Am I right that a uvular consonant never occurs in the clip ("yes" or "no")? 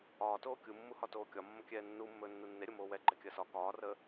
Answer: yes